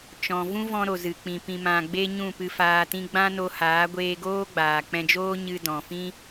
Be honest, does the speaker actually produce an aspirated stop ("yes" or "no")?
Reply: no